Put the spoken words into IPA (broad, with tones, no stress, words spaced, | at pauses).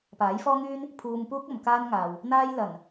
paː˨˥jfɔː˥ŋyː˥n | pʰuː˧mpuː˥k̚ ɐ˨˧mkaː˥nŋaː˨w | n̪aː˥jlɐ˨˩n